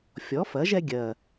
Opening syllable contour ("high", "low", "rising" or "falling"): rising